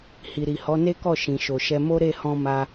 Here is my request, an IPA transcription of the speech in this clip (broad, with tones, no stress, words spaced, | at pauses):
hi˨ɾi˨hɔ˨˦ ne˦kɔ˦˨ ʃĩ˨ʃo˨ʃɛ˧ mo˦ɾe˦˨hɔ̃˧ ma˧